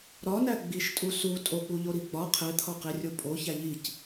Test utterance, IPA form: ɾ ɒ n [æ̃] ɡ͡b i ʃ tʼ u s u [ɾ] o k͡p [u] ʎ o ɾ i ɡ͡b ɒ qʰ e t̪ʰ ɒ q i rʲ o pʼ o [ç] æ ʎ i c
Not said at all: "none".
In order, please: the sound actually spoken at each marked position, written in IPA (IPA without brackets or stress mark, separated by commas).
æ, tʼ, u, ç